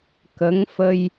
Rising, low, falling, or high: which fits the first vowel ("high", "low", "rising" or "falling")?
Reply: rising